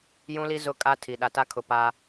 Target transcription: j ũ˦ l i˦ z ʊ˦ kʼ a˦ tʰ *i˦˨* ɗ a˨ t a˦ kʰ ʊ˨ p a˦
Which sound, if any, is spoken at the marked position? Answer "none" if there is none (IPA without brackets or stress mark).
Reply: i˨